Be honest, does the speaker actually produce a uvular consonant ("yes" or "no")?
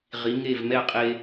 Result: yes